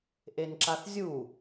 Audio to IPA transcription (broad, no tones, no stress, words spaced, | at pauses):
ʔenǁaθzʲu